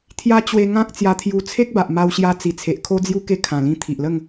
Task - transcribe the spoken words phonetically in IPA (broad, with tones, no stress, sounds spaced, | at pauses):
t̪ʰ j a˦ t͡ɕ w e˧ ŋ ã˦ k̚ t͡s j a˧ t̪ʰ j u˧ t͡sʰ e˦ k̚ b a˨ ʔ m a˧ w ɕ j a˧ t͡s i˨˩ t͡sʰ e˨ ʔ kʰ o˦ d͡z j u˦ k e˦ kʰ ã˨˩ l ĩ˧ t̪ʰ i˨ ʔ l ə˥˧ ŋ